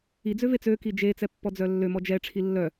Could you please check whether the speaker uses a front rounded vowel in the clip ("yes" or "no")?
yes